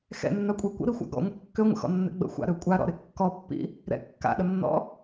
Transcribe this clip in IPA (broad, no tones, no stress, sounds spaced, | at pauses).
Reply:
x ɛ̰ nː a kʷʼ ɛ kʷ ə̰ ɾ i xʷ a̰ ɡ ɔ̰ ŋʷ ə kː ø ŋʷ ə̰ x ɔ̰ nː ɛ̰ ɡ͡b ə̰ xʷ a̰ ɾ ø kʷʼ a ɾ ɔ̰ ɾ ɪ kː ɔ pː ḭ | ɾ ɛ̰ kː a̰ ɗ ə nː ɔ̰